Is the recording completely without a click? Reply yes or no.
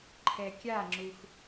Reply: no